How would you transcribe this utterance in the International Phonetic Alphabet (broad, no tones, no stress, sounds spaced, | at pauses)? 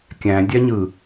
kʲ æ̃ dʲ æ ɲ ɯ